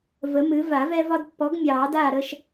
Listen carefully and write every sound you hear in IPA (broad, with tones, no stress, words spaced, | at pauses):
və˨˥mɨ˨˥ va˨˩˦vɛ˦vɒ˦d pːɔ˨˥ɡmʲɑː˨˩˦ daː˥˨ɾə˦ʃ